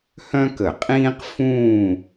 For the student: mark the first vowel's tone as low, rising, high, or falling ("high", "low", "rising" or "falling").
high